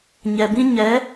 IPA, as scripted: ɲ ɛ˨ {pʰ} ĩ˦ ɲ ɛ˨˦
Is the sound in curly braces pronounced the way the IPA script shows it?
no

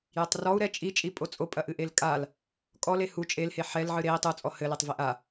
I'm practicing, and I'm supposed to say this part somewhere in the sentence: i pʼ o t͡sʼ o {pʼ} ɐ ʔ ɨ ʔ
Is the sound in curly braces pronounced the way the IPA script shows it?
yes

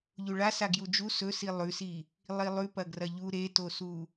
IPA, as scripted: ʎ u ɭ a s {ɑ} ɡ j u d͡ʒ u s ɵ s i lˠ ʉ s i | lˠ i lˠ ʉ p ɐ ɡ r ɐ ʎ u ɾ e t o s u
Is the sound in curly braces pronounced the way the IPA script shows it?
no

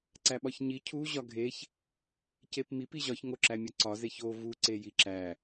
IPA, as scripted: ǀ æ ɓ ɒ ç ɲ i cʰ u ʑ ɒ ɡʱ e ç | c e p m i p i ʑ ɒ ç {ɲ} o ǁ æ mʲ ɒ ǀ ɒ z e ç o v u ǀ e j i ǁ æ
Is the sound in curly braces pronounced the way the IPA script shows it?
no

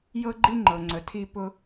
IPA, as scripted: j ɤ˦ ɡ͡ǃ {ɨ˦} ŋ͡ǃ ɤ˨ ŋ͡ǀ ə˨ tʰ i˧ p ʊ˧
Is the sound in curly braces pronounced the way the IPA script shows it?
no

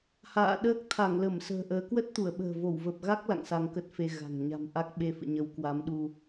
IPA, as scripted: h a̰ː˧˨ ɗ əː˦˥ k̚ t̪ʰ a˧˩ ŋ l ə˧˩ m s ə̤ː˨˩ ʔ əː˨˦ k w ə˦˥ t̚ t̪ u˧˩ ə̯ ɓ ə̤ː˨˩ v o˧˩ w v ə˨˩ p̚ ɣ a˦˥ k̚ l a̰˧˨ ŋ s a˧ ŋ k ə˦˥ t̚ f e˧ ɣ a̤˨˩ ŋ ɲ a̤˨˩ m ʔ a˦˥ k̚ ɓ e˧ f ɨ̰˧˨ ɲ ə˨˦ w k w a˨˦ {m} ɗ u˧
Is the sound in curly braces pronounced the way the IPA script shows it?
yes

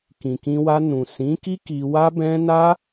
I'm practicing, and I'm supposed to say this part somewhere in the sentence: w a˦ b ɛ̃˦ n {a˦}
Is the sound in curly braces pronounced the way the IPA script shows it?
yes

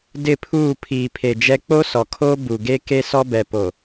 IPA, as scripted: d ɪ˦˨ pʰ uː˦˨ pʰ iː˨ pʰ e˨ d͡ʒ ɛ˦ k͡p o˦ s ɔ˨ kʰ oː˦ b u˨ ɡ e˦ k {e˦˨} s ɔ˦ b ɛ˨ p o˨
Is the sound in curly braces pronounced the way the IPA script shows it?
no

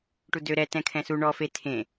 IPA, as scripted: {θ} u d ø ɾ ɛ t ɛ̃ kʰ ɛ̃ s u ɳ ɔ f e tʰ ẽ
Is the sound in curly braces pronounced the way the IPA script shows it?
no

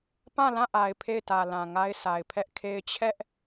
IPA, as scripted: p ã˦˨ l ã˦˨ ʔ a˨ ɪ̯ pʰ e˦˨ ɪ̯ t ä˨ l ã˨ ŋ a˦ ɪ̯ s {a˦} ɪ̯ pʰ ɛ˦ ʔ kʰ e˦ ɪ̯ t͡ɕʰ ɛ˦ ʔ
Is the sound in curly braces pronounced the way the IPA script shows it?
no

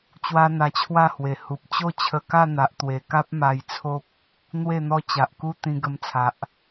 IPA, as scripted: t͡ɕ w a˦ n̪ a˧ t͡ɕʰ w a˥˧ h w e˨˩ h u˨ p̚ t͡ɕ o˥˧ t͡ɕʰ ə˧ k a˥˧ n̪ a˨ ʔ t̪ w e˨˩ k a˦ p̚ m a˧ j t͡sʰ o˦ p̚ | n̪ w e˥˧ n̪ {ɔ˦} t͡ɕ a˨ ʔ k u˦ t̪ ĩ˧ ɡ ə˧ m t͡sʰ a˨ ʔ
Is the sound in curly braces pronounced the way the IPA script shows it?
yes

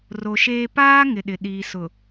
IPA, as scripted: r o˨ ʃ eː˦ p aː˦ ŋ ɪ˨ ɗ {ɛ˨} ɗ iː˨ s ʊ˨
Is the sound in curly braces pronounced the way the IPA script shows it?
no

